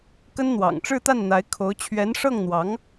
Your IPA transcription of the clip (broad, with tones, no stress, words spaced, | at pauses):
kə˥nn̪wɑ̰˨˩ŋ ʈ͡ʂɻ̩˥˧t̪a˥˩nn̪a˧˥ɪ̯ kʰo˧˥ʊ̯ t͡ɕʰɥɛ˧˥nʂɤ˥˩ŋn̪wɑ˧˥ŋ